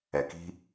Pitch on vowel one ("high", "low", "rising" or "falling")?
low